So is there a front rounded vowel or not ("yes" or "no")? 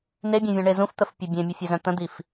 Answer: yes